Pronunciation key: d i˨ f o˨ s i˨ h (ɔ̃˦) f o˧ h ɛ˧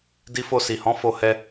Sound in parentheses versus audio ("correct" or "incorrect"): incorrect